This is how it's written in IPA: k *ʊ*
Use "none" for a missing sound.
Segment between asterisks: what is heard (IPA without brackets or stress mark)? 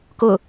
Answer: ʊ